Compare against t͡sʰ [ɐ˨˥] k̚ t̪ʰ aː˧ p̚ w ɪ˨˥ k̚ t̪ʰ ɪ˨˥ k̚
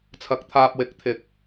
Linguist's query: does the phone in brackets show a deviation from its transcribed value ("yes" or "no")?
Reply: no